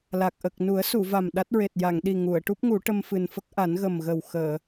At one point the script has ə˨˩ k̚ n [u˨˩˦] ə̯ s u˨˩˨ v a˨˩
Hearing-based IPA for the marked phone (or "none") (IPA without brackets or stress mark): u˨˩˦